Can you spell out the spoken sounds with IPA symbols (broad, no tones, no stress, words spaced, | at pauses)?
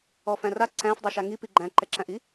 ɔfæ̃ra ǀæ̃f dˤeʃaŋipi ɡ͡ǃæ̃ǃɛǁæ̃ʔi